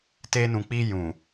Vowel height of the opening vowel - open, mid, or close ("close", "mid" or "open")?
mid